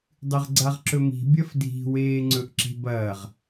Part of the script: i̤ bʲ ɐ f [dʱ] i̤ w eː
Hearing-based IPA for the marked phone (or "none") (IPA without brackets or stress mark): dʱ